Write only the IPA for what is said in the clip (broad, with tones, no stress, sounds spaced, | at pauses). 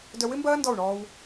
d œ˧ w ɪ˦ m b ɐː˦ n d ɔ˦˨ u̯ ɳ ɔː˧ w